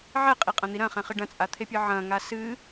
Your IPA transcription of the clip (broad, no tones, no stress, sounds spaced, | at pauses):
ʕ ɛ qʼ i qʼ ɐ̃ n̪ i ɾ ɐ̃ χ ɛ̃ χ ɨ ɖ ɐ̃ t͡sʼ a t̪ʰ e pʲ ɨ ʕ ɐ̃ ŋ a s ɨ